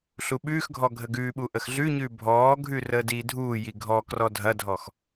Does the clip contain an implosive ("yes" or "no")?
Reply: yes